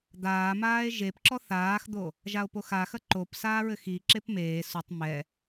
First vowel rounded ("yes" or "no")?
no